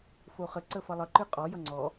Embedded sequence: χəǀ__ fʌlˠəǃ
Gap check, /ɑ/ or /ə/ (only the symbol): ə